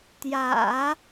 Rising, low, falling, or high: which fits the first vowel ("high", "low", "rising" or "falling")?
low